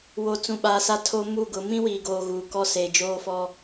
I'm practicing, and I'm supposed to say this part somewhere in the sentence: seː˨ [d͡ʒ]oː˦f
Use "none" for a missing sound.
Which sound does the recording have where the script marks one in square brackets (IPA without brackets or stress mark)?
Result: d͡ʒ